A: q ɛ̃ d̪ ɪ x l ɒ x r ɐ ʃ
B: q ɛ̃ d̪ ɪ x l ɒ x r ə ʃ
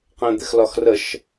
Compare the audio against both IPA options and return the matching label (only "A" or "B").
B